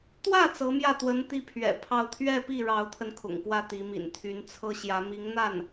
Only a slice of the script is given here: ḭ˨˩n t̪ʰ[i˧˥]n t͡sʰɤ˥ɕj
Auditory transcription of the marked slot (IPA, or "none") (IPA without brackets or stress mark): y˧˥